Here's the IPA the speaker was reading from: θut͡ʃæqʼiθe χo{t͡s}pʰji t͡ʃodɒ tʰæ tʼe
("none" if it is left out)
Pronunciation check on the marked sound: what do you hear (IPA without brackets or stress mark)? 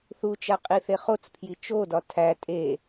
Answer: t͡s